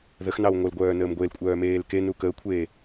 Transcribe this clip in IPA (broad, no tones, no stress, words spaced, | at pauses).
ðəxnɑw ŋʷœlɡʷœːnəːm ɡʷelkʷʼœːmeːl kenu kəːkʷʰeː